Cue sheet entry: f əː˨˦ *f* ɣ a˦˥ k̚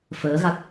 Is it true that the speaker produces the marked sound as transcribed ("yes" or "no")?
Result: no